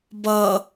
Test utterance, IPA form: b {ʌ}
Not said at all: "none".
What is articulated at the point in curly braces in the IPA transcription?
ʌ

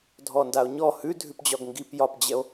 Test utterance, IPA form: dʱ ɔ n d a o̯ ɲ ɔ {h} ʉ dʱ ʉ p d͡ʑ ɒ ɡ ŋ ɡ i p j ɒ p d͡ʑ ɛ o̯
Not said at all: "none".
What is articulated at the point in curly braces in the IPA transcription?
h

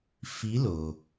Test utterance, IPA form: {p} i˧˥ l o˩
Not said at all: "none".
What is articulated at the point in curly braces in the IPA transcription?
f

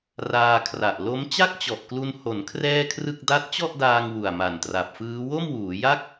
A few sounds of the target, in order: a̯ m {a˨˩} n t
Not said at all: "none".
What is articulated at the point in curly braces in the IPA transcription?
a˨˩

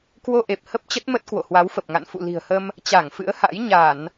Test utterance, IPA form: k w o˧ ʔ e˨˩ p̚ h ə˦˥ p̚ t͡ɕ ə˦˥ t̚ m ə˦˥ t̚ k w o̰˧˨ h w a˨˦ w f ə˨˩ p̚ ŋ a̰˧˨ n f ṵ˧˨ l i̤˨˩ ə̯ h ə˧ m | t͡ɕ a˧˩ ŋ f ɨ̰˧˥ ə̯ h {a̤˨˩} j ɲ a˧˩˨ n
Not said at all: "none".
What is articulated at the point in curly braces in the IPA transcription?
a̰˧˥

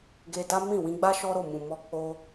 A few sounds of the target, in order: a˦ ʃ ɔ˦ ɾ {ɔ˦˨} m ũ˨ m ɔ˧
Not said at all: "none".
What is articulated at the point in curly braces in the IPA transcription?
o˦˨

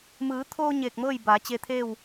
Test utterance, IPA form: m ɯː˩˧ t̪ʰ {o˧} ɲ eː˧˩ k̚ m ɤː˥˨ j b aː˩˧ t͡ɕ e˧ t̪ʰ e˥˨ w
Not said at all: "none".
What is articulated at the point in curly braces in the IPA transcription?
oː˧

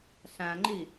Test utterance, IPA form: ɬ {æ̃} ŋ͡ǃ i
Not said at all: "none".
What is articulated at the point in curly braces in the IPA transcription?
æ̃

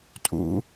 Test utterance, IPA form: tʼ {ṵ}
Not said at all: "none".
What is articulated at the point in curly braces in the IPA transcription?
ṵ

